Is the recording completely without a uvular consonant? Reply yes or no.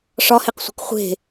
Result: no